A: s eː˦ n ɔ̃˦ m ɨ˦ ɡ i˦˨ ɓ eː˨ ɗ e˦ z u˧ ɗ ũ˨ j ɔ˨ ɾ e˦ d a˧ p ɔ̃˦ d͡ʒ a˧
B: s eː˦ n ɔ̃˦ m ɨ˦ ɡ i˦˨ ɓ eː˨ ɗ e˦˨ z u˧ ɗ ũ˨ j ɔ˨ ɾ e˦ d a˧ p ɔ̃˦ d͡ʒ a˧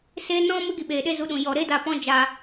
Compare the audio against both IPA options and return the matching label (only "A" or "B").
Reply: A